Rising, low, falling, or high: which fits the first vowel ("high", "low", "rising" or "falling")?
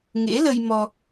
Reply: rising